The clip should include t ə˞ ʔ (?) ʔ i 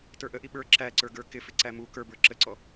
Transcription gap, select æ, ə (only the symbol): ə